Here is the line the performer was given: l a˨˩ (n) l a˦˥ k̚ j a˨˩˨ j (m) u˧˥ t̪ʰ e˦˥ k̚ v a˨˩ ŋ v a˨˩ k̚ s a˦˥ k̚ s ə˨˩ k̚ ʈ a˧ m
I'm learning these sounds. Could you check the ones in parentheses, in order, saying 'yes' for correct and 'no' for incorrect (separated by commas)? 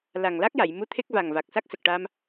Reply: no, yes